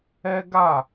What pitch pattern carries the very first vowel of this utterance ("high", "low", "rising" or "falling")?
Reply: high